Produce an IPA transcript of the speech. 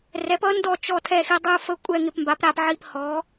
rɛ˩˥pʌ˩˥ndɔ˦˨ t͡ʃɔ˦˨tʰɛ˦˨xi˦˨ dˤɯ˦˨fə˦˨kʷʼɛ˦˨ ŋɪ˦˨pmba˩˥pɾa˦˨pʕi˦˨p hɔ˩˥

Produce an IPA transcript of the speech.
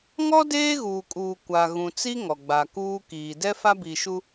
ŋɔ˦ deː˦ɣuː˨kʼuː˨ kʷa˨ ɣũ˨t͡si˦ ŋɔ˨ɡ͡ba˨kuː˦ kiː˨ dɛ˦fa˦bi˨ʃu˦

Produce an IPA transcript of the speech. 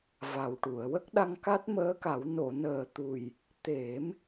va˨˩wʈu˨˩˨ə̯ wə˦˥k̚ɗa˧ŋ ka˦˥t̚məː˧˥ka˨˩˦w no˨˩˨nəː˨˩t̪u˨˩j | t̪e˨˩˦m

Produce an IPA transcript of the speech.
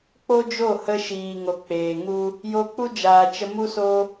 k͡po˦d͡ʒo˦˨hə˧ ʃiː˨ŋo˨k͡peː˨ŋu˦ | jo˧k͡pu˦d͡ʒaː˨ t͡ʃə˧mu˦so˦

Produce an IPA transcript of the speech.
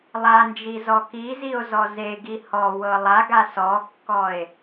lˠand͡ʒi zɔkizio̯ zɔzeɡi hɔwɤ lˠaɡa sɔkːɔe̯

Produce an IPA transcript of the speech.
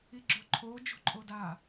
iɡ͡ǁoǃʰo d͡ʒṳǃʼoda

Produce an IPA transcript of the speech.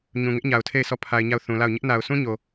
ɲũ˨ŋɪ˦ʔɲa˨ʊ̯tʰe˦˨ɪ̯ sɔ˦˨pʰa˨ɪ̯ɲa˦˨ʊ̯ θũ˨la˦˨ʊ̯ ɲɪ˦ʔna˨ʊ̯ sʰũ˦ɲo˨

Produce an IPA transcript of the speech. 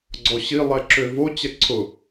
ɡ͡ǀɔɕi lˠɛǁøvo t͡ɕɛǀʰʊ

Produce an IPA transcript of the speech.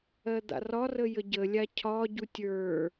ɜd̪a̰rɒrə jəɟəlʲa cʰɒ ɟutʲə˞

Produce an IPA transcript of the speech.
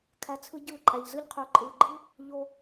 kʰæ˧t͡sʰɯ˦ɟɯː˦˨ ǃʼæ˨ʎzɯ˧ʎ qʰø˨ǃʼɯː˨ɡ͡ǃɯ˦ | ʎo˧

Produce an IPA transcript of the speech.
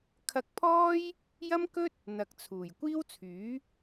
kʰɐ˧k̚pʰɔː˥j | jɐ˥mkɵ˥t̚ | n̪ɐ˨k̚t͡sʰuː˨˩j kʷiː˥wt͡sʰyː˨˥

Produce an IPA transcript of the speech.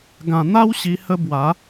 ɡã˨˩n̪a˦w ɕi˧hə˦ bwa˨˦

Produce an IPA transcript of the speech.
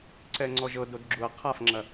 ǀɛŋ͡ǀɔʒɤdod ɡ͡ǁuɐ̯ qʰafŋ͡ǁɐ

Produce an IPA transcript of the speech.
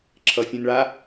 ǁʰʌfʲũnɭa

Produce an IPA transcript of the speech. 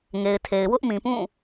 ŋe˨ɪ̯tʰe˨ɪ̯ wʊ˦ʔmĩ˨pũ˦˨

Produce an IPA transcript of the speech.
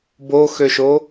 boxøʃo

